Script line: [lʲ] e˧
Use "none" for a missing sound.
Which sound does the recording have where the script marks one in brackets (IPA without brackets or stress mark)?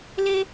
l